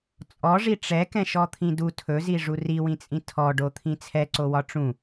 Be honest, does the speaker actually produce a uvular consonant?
no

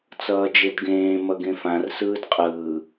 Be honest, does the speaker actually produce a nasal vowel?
yes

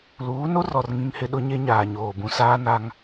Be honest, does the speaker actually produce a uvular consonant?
no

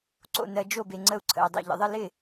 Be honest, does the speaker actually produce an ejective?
no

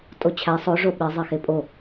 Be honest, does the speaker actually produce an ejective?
yes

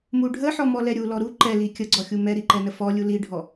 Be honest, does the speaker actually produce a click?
yes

